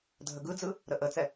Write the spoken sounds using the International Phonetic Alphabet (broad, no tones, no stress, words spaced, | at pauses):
dʱəɡɯd͡zɯ | ɾəʔət͡sɛ